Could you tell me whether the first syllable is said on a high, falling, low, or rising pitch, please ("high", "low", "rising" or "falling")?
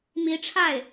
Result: rising